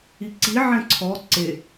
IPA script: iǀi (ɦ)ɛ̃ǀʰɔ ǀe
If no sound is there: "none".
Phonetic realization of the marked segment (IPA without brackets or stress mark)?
ʕ